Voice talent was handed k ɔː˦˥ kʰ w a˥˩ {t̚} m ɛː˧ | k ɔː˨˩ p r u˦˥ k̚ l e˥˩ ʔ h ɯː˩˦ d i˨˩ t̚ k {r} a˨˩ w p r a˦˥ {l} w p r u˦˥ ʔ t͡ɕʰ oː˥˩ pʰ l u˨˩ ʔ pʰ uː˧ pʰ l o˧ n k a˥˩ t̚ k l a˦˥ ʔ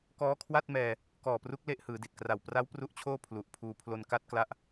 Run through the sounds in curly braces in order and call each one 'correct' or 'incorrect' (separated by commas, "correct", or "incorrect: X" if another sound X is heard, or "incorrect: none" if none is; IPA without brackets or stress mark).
correct, correct, incorrect: none